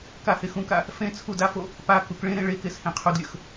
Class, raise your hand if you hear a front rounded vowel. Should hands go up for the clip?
no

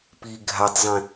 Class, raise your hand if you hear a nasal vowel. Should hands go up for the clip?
yes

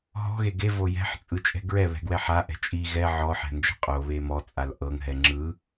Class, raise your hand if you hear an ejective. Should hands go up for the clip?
yes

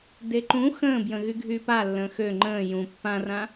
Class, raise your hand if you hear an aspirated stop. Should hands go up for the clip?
no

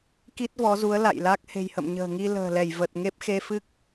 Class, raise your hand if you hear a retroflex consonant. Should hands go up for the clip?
no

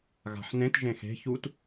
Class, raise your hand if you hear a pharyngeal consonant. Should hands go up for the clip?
yes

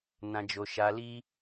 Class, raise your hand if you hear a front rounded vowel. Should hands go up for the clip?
no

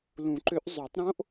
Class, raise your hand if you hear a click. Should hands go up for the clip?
yes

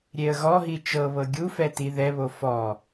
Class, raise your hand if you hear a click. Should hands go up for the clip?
no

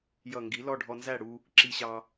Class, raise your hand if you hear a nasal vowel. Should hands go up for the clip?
no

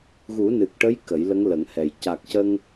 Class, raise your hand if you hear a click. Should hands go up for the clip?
no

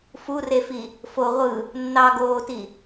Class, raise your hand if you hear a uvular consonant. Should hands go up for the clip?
yes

